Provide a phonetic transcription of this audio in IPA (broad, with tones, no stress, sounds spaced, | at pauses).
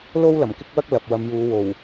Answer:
l o˥ w l ɐ˨˩ m k ɪ˥ k̚ w ɐ˥ k̚ l ɐ˨ p̚ w ɐ˨˧ m j uː˨˧ w o˨˩ w